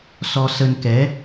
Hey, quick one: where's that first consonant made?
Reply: tongue tip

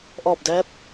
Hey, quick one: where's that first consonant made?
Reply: throat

